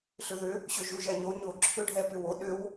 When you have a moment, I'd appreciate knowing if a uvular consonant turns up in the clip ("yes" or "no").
no